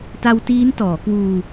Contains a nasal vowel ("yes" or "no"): no